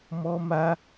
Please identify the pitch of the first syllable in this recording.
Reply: high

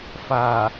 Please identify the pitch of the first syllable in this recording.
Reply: low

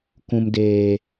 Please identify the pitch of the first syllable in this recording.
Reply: low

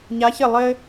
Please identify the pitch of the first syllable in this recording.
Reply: rising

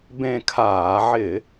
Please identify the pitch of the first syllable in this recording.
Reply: falling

